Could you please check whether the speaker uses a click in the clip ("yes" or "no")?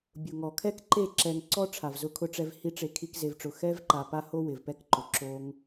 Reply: yes